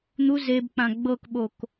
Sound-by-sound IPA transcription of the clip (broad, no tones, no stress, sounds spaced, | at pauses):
n̪ u z e b k͡p ã ɡ͡b ɤ k ɓ o k